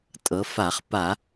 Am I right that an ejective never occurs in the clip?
no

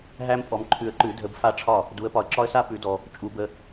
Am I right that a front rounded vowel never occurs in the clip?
yes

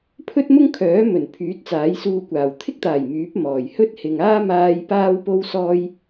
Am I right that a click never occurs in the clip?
yes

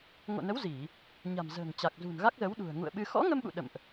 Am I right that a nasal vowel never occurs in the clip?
yes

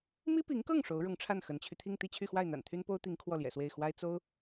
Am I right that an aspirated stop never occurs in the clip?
no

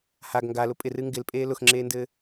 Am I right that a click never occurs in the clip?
no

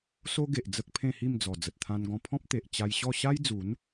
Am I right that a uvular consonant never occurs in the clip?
yes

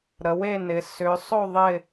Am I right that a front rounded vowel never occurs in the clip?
no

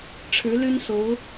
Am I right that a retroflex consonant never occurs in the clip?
no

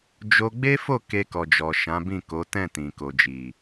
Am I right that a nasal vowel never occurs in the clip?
no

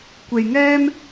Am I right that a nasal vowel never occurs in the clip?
yes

